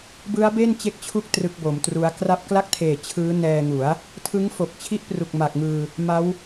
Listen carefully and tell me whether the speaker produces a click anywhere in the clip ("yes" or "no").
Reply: no